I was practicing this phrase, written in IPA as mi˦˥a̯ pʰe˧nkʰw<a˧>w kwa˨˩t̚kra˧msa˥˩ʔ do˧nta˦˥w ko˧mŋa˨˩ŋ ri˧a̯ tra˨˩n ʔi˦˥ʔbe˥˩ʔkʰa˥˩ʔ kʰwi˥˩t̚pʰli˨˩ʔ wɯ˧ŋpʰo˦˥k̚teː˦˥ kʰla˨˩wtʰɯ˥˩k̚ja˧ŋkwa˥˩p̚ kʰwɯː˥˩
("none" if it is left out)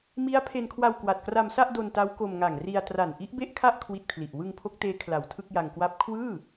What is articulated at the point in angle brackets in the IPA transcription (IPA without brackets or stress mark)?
a˧